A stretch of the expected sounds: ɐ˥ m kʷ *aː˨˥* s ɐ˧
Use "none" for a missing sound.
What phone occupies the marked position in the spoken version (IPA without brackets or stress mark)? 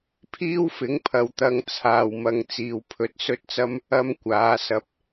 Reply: aː˨˥